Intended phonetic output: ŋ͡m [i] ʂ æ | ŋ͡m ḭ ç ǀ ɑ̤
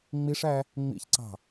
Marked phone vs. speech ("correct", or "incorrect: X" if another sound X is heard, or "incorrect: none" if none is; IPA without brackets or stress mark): correct